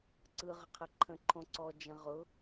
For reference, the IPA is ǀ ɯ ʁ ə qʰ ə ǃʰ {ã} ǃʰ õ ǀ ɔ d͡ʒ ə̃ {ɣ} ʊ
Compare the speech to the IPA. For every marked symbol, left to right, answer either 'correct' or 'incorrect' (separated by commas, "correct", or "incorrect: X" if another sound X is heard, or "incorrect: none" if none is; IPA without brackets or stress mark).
incorrect: ə̃, incorrect: ʁ